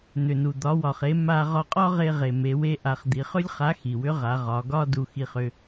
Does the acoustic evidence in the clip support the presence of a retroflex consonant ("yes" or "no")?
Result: no